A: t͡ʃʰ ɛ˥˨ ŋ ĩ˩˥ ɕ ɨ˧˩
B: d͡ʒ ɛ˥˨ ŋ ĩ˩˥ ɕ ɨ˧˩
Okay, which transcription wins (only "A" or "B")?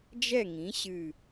B